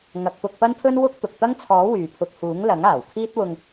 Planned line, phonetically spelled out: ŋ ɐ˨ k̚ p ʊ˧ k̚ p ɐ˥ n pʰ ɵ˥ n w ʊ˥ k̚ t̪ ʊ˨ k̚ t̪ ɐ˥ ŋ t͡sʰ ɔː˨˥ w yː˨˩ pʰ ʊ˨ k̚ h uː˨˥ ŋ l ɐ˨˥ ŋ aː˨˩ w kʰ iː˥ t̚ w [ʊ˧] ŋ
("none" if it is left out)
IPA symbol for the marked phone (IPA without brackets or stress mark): ʊ˧